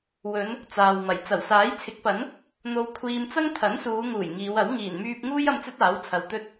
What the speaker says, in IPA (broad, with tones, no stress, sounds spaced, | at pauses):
w ɵ˨˧ n | t͡s aː˨ w m ɐ˨˩ j t͡s ɐ˨˩ w s aː˨˥ j t͡sʰ ɪ˨˥ k̚ p ɐ˨˥ n | n̪ o˧ w kʷʰ iː˧ m t͡s ɐ˥ ŋ t̪ʰ ɐ˨˥ n s uː˨˧ ŋ uː˨˩ j ŋ iː˨˧ w ɐ˨˥ w ŋ iː˨˩ n m yː˧ p̚ ŋ uː˥ j ɐ˧ m t͡s ɵ˥ t̚ aː˨˥ w t͡sʰ ɐ˨ w t̪ ɵ˧ t̚